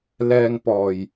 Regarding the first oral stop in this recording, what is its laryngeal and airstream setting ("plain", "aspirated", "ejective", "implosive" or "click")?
plain